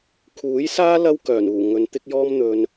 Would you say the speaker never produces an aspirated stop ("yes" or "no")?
no